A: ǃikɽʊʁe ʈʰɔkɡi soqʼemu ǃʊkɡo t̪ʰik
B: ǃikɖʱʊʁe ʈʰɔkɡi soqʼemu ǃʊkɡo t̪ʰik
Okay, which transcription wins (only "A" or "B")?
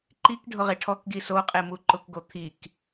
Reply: B